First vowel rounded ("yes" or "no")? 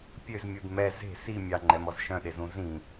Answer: yes